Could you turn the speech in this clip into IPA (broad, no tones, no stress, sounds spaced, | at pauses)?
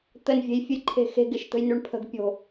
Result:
t̪ ə n vʲ e̤ j fʲ ə j ǃʰ e̤ x e̤ ɡ ɪ ʃ t̪ ə̤ j n ʉ ɳ pʰ ə̤ ɡ pʲ o̤